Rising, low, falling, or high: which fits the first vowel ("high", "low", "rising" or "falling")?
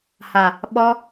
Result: low